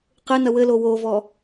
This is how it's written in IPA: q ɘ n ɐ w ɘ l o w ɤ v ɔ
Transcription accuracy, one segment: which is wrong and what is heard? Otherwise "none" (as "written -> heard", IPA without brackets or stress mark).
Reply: ɤ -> o